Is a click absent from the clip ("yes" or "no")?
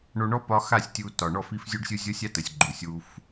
no